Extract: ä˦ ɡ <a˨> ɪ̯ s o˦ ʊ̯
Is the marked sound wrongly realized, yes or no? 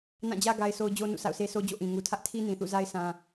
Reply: yes